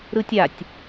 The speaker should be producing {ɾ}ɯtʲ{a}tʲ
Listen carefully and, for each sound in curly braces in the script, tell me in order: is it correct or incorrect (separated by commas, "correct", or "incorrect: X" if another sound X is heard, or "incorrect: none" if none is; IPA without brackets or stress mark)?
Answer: correct, correct